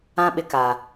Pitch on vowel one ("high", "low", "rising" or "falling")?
high